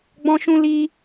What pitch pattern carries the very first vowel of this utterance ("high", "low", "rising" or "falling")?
high